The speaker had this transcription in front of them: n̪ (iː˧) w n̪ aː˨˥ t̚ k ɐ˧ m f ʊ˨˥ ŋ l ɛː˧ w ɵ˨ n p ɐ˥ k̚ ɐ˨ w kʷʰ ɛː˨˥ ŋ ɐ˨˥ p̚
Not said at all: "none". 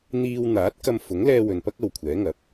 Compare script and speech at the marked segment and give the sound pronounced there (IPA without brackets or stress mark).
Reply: iː˧